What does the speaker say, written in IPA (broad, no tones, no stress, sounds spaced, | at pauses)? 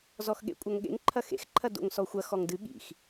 z ɔ x ɠ ḛ kʷʼ ɐ ŋ ɠ ḛ ŋ ǃʰ ɐ x ḛ x ǃʰ ɐ d o̰ ŋ s ɔ xʷ ɐ x ɔ ŋ d ɨ ɠ ḭ x